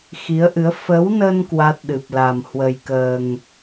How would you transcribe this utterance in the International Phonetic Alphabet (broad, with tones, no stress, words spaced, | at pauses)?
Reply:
xi˨˦ə̯ʔɨ˨˦ə̯ fə˨˦wnə˧n kwa˦˥t̚ɗɨ˨˩p̚la˨˩m hwə˨˩jkəː˨˩ŋ